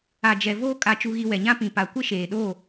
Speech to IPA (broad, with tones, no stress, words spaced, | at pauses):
a˨ d͡ʒɛ˨voː˦ kʼa˦˨t͡ʃu˦ɣi˦ wɛ˨ɲã˦ pĩ˨pa˨ kʷɪ˦ʃeː˨ɗo˦˨